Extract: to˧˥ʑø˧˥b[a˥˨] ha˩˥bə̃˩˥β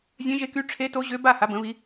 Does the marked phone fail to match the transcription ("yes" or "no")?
no